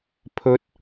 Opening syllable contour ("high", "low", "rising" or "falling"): high